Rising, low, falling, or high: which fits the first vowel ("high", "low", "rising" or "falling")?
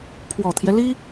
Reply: low